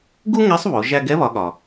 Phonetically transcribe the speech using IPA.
ɡ u˥ ŋ ɛ˧˥ sˤ β o˩˧ ʒ æ˧ ɡ ɛ˧˥ β ɒ˩˧ ɠ ɒ˩

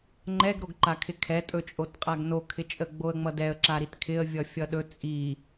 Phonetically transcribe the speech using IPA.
ŋ͡ǃ ɛ ɡ ɾ o ɡ ǃ a kʰ ɪ kʰ ɛ tʼ ɵ t͡ʃʼ o t qʼ a ɡ n o kʰ ɪ t͡ʃʼ ə ɡ͡b o ə̯ ŋ͡m ʌ d ɛ ə̯ ǁ a ɾ i t kʰ ɪ ə̯ vʲ ʌ fʲ ʌ ɗ ɵ t͡sʼ i

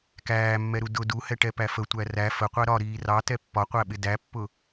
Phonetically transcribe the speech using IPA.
k æː mː ɛ ɾ u d ʊ d u h ɛ ʈ ɛ p æ f ə tʷ æ r æ f ə qʷ æ ɾ ɒ ɾ iː r ɑ t ɛ pː ɒ qʷ æ ɓ ɪ d æ pː ʊ

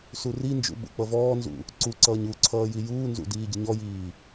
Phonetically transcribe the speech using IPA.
s u r i n d͡ʒ ṵ ɓ ṵ k͡p ʌ v ɔː n z ṵ | ǀ u ǀ ʌː ɲ u ǀʰ ʌː j i j uː n z ṵ d iː ɟ ə ɲ ɔ j iː

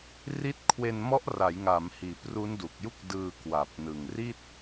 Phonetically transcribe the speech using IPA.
r i˦˥ t̚ kʰ w e˧ n m ɔ˦˥ ʔ r a˩˦ j ŋ a˩˦ m h iː˩˦ p r u˦˥ n d u˨˩ k̚ j u˥˩ k̚ d ɯː˧ k w a˨˩ p̚ n ɯ˨˩ ŋ r i˥˩ t̚

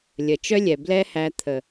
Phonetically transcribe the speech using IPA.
lʲ ə˨ t͡ʃ œ˦ lʲ ɛ˨ b l ɛ˦ h æ˧ t̪ʰ ə˨

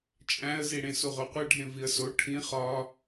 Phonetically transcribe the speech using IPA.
t͡ʃʼ æ̃ ə̯ z i ɽ ẽ s u ʁ o qʷ æ ɖʱ ẽ v i ə̯ s o ʈʰ ĩ χ ɒ

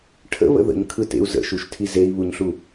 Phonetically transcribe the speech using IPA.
ʈʰ ə̰ β ə̰ ð ə̰ ɲ kʰ ɯ t ḛ u̯ z ə̰ ʃ u ʃ tʰ i z e i̯ β u ɲ ɬ u

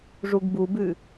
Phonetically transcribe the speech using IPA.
ʐ u ɡ b u b ʉ

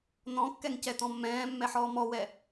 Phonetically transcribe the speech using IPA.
n ɔ̃ kː ɛ ŋ c ɛ t ɔ̃ mː ɛ̃ː mː ɛ ħ ɔː m ɔ w ɛ

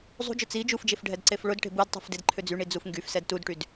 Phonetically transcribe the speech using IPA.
zˤ ṳ d͡ʒ ʊ t͡s i d͡ʒ u f d͡ʒ e f ɖʱ ɛ d ǀ e f ɭ ʊ d ʈ e̤ b u d tˤ ṳ f d e d ǃʰ ʏ d͡z y ɳ i d͡z u f ŋ ɡ y f s ɛ d t u d ʈ y d

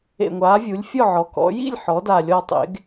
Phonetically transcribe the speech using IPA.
ḛ˨˩ ŋʷ aː˩˧ vʲ u˩˧ lʲ fʲ ɔ˥˨ ʕ ɔ˩˧ k ɔ̰˩˧ j ḭ˥˨ lʲ ħ ɔ˩˧ d a˨˩ lʲ ɔ˨˩ tˤ ḛ˩˧ ɡ

